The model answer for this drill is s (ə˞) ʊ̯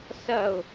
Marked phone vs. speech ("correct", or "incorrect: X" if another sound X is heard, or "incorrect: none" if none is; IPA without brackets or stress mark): incorrect: ɐ